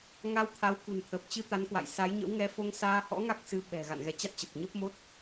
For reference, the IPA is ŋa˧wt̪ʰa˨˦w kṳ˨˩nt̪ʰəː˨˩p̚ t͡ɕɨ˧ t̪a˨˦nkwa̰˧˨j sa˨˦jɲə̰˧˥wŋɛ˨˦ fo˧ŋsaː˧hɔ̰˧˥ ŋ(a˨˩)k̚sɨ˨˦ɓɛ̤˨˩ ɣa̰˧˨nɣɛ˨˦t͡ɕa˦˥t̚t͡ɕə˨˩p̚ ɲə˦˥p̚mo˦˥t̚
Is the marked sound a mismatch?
yes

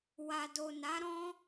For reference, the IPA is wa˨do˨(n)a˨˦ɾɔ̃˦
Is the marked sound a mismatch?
no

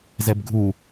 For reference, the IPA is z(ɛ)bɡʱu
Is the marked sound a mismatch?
no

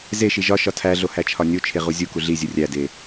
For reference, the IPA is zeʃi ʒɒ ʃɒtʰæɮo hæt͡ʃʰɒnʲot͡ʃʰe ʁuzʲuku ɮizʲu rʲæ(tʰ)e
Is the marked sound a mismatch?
yes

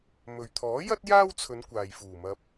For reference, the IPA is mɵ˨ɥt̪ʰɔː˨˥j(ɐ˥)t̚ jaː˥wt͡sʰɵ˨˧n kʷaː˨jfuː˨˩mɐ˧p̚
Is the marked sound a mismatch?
no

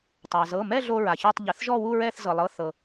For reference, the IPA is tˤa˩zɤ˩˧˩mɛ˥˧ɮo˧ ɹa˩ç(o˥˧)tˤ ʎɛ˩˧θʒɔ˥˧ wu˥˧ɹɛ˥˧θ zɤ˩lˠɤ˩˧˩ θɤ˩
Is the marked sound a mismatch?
yes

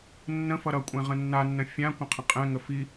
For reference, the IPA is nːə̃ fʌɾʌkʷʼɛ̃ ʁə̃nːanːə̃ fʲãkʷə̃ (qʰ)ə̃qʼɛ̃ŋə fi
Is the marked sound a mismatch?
no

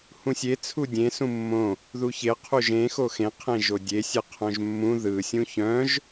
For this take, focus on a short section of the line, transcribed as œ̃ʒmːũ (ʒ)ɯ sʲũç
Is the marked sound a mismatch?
yes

